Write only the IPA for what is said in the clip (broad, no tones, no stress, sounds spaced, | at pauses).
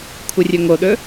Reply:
kʷʰ ɨ rʲ ɵ ŋ o ɗ ɵ